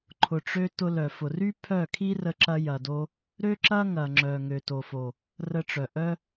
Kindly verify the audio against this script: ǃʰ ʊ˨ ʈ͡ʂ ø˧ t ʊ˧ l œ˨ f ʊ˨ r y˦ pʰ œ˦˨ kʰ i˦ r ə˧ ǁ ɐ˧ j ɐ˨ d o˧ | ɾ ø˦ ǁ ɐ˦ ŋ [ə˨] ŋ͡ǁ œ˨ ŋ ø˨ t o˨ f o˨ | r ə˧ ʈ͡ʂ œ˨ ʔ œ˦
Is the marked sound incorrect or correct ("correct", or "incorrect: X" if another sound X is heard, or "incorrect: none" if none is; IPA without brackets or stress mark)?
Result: incorrect: ɐ˨